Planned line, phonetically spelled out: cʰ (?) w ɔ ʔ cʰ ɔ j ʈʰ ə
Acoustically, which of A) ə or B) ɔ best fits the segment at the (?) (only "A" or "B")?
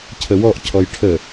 A